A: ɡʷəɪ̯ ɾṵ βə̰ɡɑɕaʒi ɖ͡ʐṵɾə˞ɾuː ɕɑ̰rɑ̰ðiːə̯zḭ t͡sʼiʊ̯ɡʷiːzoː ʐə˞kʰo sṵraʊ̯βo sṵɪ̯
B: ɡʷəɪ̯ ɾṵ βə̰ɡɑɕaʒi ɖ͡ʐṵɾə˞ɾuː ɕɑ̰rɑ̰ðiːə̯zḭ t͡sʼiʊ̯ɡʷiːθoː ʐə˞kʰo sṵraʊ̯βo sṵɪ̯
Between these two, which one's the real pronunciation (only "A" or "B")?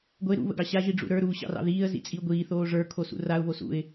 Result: B